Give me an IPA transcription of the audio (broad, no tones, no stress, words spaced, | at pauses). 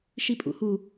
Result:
ʃipʼṵhu